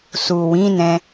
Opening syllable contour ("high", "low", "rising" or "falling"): low